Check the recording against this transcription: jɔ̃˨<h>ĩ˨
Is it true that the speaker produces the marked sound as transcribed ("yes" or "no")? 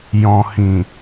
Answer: yes